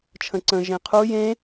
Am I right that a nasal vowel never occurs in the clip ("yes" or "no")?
no